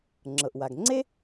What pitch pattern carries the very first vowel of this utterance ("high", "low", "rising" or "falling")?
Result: low